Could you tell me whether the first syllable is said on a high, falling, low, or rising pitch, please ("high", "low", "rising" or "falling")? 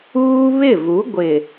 high